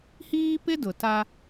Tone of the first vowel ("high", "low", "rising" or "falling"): high